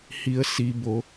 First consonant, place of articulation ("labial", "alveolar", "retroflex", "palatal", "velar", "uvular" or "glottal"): glottal